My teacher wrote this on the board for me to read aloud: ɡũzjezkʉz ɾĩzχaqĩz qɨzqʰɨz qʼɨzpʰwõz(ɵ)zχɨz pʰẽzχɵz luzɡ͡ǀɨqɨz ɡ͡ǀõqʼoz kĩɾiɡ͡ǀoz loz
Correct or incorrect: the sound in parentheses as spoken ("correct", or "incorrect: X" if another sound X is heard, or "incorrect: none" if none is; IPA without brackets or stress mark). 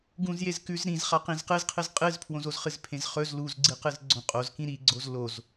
incorrect: o